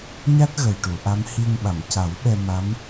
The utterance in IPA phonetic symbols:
ɲa˦˥t̚ɣə˨˩jʈu˨˩˨ ʔa˧˥mhi˧ŋɓa˨˩˨m ca˨˩˦w ɓɛ˧ma˧˥m

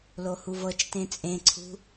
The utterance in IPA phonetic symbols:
lohuvɤt͡ʃtẽ t͡sʼẽǀʰṳ

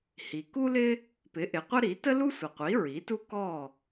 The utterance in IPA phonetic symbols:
hi˩ku˥lɪ˥ | pɪ˩˥ʔɪ˩ qʷə˥ɾi˩˥ tə˥lu˥sʷə˩qʷi˩˥ ɹi˩˥tu˥ kɔ˥˩

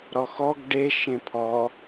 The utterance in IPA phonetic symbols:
ɾɔxɔɡ ɖe ʃẽpʰɔ

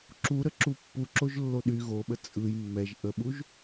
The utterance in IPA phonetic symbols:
ǁuɾəǁu pːuǁoʒlːo ɗy ɣoɓə t͡sʼɯj mːɛʒ ʔəɓuʒ

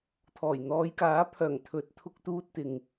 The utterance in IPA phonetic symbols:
t̪ʰɔː˨˩jn̪ɔː˨˧jkaː˨˥pʰœː˨˩ŋ t̪ʰɵ˨t̚ t̪ʰʊ˧k̚t̪uː˧t̚t̪ɪ˨ŋ

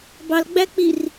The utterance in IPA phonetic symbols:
bɑlɡ͡bæk͡pir

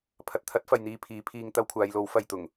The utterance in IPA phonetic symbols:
pʰɐ˨t̚t̪ʰɐ˨˥t̚fɐ˨jn̪iː˨ pʰiː˨˧pʰiː˧ŋ t̪ɐ˥wkʷʰaː˨˧jlo˨˥w fɐ˨jt̪ʊ˨˩ŋ

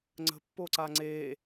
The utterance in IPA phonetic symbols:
ŋ͡ǀə̤pːoǀa ŋ͡ǀe

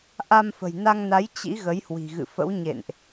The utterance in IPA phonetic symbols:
ʔa˧mfə̤˨˩jna˧ŋna˨˦j t͡ɕḭ˧˥ ɣə˨˦jhwi̤˨˩ɣɨ̰˧˨fə̰˧˥w ɲḛ˧˨nʔ

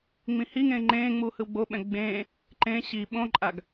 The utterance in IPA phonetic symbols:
ŋ͡mĩhiŋẽː ŋ͡ǃẽː ŋ͡muːhɯwɡ͡boɓɛ̃ ɡ͡bẽː | ǃẽ ɕi ɓõǃʼaɡ

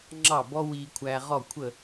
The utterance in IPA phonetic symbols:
ŋ͡ǁɑ˥˩bɔ˥wiː˧kʷʰæː˧ ʁɔ˥˩kʷʰə˥˩

